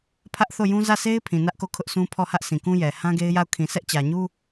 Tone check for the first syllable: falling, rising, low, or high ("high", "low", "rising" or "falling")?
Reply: high